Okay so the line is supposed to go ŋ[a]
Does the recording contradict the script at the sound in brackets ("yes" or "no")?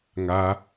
no